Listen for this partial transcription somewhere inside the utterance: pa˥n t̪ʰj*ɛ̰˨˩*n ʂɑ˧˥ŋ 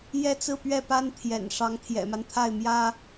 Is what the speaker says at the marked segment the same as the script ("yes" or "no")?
yes